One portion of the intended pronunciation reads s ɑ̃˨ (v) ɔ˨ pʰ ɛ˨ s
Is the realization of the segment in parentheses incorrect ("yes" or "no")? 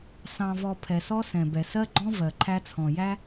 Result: no